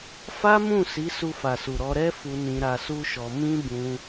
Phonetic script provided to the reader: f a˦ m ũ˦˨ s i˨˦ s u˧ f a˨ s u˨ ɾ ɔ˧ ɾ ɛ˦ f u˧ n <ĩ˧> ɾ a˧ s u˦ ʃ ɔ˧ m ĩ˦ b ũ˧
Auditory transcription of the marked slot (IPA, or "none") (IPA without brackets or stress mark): ĩ˧